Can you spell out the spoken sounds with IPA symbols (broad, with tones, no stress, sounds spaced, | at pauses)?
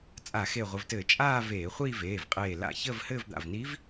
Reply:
t͡sʼ a˧˩˧ x e˧˩ ʁʷ ə˩˧˩ v t ɘː˧˩˧ t͡ʃʼ aː˥˧ v eː˧˩˧ χʷ iː˥˧ v eː˩˧˩ v qʼ eː˧˩ l a̰˧˩˧ ç əː˥˧ v h ɘː˥˧ v d̪ a̰˩˧˩ v n i˧˥ v